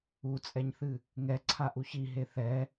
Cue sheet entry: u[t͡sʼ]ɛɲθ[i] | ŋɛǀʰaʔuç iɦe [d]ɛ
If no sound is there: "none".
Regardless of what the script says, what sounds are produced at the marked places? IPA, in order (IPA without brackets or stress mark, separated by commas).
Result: t͡sʼ, ɨ, θ